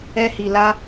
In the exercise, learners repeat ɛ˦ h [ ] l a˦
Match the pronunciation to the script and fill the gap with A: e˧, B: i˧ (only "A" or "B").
B